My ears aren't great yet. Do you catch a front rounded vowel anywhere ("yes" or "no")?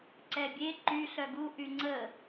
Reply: yes